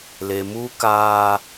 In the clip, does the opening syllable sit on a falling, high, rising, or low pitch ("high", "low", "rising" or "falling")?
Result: low